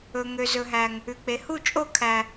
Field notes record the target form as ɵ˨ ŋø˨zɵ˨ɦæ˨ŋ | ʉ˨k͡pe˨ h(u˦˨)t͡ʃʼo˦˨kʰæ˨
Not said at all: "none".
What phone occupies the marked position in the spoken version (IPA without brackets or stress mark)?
u˦˨